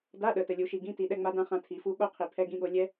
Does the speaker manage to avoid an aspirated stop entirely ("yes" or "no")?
no